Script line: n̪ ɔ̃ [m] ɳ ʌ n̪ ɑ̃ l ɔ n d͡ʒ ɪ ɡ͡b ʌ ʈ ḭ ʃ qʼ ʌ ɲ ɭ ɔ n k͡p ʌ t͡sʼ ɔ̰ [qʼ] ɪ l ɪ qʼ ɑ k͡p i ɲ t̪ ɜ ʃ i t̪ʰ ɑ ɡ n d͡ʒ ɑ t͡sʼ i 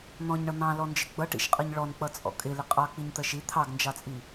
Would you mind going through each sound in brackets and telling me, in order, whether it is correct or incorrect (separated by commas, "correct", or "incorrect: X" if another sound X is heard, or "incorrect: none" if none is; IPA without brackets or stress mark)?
incorrect: ɲ, incorrect: kʼ